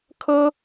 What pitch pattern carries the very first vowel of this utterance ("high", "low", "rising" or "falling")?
high